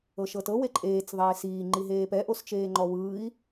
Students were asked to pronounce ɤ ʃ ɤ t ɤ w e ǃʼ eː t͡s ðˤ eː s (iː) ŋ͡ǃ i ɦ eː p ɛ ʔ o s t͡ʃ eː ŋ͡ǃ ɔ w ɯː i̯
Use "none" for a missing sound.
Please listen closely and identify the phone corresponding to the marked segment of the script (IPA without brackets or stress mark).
iː